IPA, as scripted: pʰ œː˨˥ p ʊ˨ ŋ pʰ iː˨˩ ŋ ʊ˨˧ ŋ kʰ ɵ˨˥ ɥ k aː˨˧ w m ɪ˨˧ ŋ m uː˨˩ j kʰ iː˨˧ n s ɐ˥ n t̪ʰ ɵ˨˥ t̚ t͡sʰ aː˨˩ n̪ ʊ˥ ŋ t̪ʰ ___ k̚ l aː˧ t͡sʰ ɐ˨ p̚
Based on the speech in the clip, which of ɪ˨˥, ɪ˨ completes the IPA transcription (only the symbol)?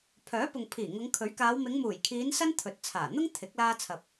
ɪ˨˥